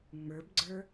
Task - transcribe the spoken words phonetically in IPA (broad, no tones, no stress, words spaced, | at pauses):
ŋ͡mə˞bɡ͡ǀə˞